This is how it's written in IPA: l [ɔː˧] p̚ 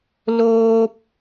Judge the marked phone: incorrect: oː˧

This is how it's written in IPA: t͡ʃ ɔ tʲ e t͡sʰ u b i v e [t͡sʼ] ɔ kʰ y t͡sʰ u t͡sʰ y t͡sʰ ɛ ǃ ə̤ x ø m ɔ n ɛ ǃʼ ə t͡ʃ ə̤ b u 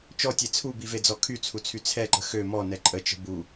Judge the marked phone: incorrect: d͡z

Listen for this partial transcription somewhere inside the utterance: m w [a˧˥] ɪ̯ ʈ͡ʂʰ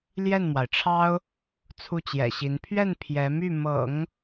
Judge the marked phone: incorrect: a˩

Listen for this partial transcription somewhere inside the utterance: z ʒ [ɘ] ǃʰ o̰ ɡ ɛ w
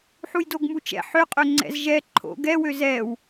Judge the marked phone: incorrect: ɛ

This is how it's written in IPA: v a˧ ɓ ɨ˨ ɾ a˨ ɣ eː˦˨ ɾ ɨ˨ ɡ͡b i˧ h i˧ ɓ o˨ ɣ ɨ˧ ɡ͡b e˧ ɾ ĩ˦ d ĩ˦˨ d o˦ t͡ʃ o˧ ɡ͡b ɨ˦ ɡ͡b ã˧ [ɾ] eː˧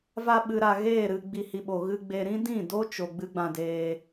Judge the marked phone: incorrect: d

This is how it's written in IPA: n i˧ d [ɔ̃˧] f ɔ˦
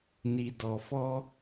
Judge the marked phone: incorrect: ɔ˧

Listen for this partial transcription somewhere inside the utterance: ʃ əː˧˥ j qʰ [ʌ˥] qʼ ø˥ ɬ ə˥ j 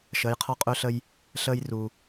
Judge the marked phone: incorrect: ɔ˥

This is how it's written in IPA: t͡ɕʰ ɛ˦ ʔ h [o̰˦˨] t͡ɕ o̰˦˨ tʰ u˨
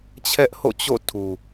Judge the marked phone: correct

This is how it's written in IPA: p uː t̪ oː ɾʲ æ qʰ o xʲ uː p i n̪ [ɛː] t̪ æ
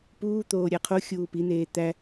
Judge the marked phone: incorrect: eː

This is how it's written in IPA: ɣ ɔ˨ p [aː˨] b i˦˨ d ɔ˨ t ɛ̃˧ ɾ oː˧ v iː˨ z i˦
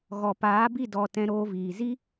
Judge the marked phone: incorrect: aː˨˦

